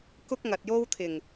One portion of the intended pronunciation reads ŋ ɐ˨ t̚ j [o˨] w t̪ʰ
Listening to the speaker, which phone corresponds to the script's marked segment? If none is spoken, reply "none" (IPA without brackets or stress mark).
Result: o˥